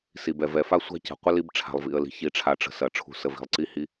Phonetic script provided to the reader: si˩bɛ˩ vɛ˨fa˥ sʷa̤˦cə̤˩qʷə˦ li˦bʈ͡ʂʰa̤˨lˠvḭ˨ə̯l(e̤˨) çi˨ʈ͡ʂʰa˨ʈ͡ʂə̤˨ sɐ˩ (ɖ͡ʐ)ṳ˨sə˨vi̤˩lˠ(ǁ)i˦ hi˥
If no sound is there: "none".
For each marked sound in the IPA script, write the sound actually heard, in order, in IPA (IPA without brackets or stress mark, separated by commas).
i̤˨, ʈ͡ʂʰ, ǀ